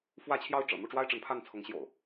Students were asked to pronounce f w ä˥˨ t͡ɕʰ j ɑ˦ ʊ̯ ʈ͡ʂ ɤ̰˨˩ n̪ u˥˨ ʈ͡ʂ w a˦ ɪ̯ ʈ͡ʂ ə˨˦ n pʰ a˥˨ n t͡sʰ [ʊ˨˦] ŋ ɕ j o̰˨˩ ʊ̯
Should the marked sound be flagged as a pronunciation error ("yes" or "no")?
no